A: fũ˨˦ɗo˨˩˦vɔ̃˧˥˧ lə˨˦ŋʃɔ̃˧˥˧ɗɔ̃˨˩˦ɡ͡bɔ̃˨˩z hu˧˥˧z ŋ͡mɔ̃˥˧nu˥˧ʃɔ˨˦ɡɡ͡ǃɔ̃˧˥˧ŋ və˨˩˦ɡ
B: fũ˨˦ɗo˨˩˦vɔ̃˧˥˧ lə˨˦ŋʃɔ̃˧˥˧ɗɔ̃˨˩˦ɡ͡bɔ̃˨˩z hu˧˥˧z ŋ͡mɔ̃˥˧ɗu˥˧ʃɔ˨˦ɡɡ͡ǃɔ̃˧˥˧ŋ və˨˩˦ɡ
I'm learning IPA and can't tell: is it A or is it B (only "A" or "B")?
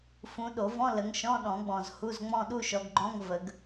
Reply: B